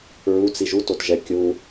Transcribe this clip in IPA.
ɹut͡si ʒutotʒɛ kʲu

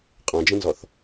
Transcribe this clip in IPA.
qʼɔ̃d͡ʒə̃nzɔθ

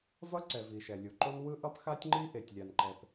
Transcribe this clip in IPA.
vʌ˥ǀɛ˩ vi˩ʃɛ˩lʲu˩ǃo˥n wɯ˥ʔʌ˥p xa˥tʲŋ͡ǃi˥ ʔe˩tʲlʲa˩n ǃɛ˩p

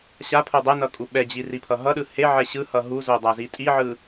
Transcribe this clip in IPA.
ɕapʰo dˤɛnʌ kʼuɓɛd͡ʑi ripʰʌɦʌɗɯ heʕɛ ɕɯhʌ ɦuzo dˤazitʼiʕɯ

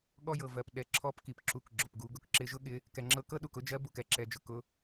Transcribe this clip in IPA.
ɠɔ˧jɤ˩vɜ˩p ɗɛ˩˧ǁʰɔ˧˥pki˩p ǁu˩˧kɡ͡ǁʊ˩pɡu˩˧ɡʊ˧k ǁɪ˧ʒʊ˥ɠɪ˧˥ | kɛ˩ŋ͡ǁɤ˧kɤ˥ɗu˩k ʊ˥d͡ʒɜ˧˥bu˩k ɛ˥ǁɛ˩˧d͡ʒʊ˩ kʊ˧

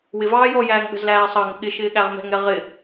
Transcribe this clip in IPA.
wɪvɑː jɔjæːŋ ɠə̤zlæːsˤɑŋɪ ɠɪ ʃɪːɠæʁmɛ̤ŋɛ ʁɪ

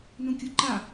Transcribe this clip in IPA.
nũkʲuǃa

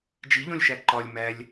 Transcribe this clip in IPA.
d͡ʒiʎõlʲʃæ ǃɒlʲ mælʲ

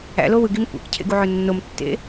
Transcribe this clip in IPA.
æ̰lo wɯɡim kʷæ̰kcʰḛɡuʕø nːomtːḛ

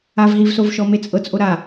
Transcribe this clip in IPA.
avɦivsovʃɔ met͡sʼɤt͡sʔo ɾa

